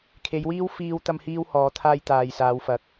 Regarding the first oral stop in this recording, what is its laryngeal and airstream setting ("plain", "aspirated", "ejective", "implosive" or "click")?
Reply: aspirated